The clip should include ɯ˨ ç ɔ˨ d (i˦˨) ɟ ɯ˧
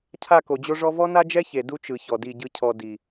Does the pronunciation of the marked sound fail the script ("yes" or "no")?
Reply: no